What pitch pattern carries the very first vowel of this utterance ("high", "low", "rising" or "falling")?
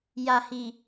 low